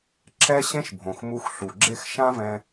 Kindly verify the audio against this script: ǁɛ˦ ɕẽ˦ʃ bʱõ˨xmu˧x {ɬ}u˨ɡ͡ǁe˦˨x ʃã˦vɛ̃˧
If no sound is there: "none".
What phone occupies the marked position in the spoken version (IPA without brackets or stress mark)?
ɬ